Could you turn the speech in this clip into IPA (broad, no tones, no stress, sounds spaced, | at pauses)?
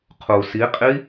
qʰ u s i qʼ i